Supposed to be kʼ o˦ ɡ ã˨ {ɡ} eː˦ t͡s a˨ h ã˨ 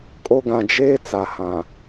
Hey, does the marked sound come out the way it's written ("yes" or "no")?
no